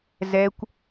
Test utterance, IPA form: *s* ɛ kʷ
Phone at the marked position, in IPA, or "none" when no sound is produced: z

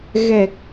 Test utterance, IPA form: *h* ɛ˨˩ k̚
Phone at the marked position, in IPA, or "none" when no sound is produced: ɣ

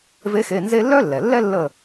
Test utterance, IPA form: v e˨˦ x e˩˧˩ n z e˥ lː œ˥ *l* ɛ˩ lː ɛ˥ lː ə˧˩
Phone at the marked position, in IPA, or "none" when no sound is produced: lː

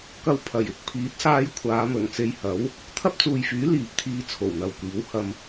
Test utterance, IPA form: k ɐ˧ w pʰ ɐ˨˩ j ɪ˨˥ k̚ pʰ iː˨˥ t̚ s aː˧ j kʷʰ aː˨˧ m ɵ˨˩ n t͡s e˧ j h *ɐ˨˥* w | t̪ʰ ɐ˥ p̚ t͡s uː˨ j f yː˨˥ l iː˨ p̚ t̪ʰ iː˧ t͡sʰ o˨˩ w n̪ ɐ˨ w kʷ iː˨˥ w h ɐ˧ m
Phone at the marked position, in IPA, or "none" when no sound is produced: ɐ˨˥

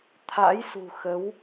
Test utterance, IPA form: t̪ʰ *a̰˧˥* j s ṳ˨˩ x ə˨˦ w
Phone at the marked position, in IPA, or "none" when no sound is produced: a̰˧˥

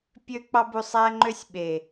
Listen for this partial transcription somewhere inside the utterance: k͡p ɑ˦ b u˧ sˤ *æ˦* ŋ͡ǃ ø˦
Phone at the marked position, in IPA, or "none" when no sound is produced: æ˦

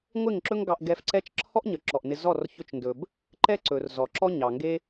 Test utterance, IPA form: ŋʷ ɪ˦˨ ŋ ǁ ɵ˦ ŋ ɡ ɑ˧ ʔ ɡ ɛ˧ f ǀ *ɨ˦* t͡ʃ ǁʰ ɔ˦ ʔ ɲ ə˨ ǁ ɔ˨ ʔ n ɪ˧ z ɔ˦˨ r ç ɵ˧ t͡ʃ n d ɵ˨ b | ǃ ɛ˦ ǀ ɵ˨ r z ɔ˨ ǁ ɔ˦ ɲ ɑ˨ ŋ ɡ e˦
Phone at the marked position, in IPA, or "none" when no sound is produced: ɛ˦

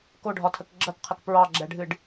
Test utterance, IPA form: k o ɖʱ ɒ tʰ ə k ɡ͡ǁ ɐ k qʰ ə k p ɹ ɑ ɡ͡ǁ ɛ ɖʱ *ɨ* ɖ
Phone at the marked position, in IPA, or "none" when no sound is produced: ɨ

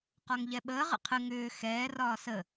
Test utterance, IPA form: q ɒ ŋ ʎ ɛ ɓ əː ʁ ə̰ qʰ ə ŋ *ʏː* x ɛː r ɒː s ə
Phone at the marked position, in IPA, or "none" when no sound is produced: ʏː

